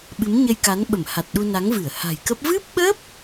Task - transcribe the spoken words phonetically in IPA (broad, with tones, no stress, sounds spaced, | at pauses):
ɓ ɨ˨˦ m ɲ ə˧ j k a˨˦ n ɓ ə˧˩ m h a˨˩ t̚ ɗ u˧ n a˨˦ ŋ v ɨ˧˩ ə̯ h a̤˨˩ j k ə˦˥ p̚ v ɨ˦˥ p̚ ɓ ə˦˥ p̚